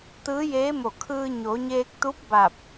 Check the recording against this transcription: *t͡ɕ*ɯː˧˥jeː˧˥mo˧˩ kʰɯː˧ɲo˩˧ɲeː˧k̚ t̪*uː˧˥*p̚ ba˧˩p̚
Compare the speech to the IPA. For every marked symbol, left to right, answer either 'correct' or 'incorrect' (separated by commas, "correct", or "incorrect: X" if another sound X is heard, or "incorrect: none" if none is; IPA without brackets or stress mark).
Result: incorrect: t̪, incorrect: u˧˥